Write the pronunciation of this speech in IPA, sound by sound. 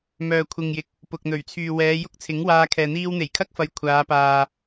m œː˨ kʷʰ ɪ˨ ŋ j ɪ˨ k̚ | p ʊ˨ k̚ n̪ ɵ˨˩ ɥ t͡sʰ yː˨ w ɛː˨˧ j ʊ˥ k̚ t͡sʰ ɪ˨˥ ŋ w aː˧ kʰ ɛː˨ n̪ iː˥ w n̪ e˨˩ j kʰ ɐ˥ k̚ f ɐ˨˧ j kʷʰ aː˨˧ p aː˨

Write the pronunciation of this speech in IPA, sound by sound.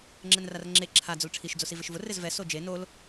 ŋ͡ǁ ɛ n r a r ŋ͡ǁ e ǁʰ a d͡z ʊ l ʈ͡ʂʰ i ʃ d͡z o s i v ɪ ʃ v ʊ r ɪ z v ɛ s o d͡ʒ e n o l

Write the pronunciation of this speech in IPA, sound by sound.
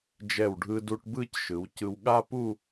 d͡ʒ ɛ˧˩ w ɖʱ ɯ˧ d u˧ ʈ b ɯ˥˧ c ʃ ɯ˩˧ w c ɯ˧ w ɠ a˥ p u˥˧

